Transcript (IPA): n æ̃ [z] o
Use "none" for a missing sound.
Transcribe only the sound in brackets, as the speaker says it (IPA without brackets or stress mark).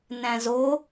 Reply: z